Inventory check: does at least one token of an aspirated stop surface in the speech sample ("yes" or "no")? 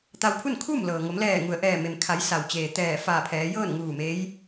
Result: yes